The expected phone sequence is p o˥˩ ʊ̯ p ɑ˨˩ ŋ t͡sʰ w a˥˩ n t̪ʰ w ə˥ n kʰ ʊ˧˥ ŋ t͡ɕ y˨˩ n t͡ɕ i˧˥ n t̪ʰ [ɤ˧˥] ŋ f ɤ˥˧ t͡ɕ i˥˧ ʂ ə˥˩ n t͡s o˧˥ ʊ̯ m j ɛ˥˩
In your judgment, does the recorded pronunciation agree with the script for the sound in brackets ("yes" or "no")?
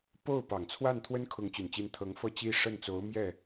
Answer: yes